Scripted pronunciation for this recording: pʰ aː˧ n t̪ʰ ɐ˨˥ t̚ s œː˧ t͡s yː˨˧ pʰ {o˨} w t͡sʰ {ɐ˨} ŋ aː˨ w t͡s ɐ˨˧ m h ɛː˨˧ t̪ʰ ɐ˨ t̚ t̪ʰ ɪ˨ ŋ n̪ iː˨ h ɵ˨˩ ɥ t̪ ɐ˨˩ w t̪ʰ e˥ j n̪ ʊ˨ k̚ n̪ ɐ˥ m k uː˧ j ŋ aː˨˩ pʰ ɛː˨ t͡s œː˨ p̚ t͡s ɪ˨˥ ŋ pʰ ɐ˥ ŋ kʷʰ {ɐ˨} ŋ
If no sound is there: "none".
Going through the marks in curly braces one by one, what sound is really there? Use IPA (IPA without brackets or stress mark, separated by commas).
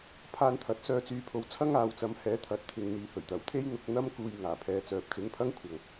o˨, ɐ˥, ɐ˨